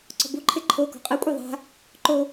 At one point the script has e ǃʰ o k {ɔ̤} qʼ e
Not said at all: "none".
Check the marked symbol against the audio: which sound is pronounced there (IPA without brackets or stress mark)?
ɔ̤